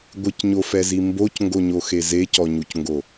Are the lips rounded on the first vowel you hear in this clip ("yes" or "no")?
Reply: no